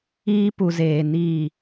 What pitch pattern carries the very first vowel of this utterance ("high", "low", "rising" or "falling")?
high